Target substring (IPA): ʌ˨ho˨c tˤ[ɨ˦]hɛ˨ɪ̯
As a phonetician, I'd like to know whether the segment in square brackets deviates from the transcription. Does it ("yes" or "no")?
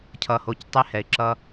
yes